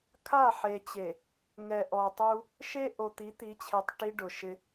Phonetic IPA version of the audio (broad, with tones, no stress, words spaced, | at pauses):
kʰa˦˨ħe˨t͡ɕe˨ | ŋɛ˨ʔɔ˨tˤu˦ | ʃe˦ ʔo˨t̪i˨˦t̪i˨˦t͡ɕʰe˨tˤ ʈi˦ɖʊ˨ ʃɪ˦